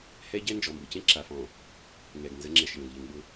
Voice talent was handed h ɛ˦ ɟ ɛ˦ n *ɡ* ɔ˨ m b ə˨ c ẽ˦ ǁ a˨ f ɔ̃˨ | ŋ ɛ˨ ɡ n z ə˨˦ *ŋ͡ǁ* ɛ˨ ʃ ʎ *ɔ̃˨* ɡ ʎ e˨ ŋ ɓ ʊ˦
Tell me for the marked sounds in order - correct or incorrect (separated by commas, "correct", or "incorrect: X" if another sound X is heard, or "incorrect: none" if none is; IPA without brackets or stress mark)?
incorrect: d͡ʒ, correct, correct